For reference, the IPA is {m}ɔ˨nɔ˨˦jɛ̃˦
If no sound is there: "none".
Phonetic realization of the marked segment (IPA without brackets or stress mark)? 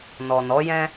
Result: n